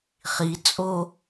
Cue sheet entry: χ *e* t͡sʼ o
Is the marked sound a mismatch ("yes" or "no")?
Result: yes